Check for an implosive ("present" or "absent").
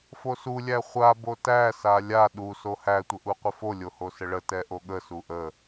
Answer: present